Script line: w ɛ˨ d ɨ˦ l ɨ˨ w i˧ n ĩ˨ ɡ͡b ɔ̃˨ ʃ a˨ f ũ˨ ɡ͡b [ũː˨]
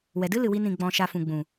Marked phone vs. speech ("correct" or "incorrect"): incorrect